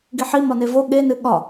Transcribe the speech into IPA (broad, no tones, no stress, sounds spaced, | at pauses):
ɡ i ħ i m ɒ n e v o ɠ e n ɨ ɠ ɒ